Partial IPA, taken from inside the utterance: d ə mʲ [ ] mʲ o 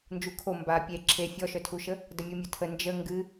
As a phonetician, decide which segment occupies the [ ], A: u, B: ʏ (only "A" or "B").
A